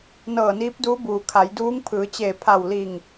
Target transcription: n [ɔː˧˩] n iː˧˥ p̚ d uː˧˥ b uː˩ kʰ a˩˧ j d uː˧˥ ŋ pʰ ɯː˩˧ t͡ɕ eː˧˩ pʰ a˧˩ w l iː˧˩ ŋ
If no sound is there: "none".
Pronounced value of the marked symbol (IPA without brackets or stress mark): ɤː˧˩